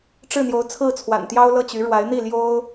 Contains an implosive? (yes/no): no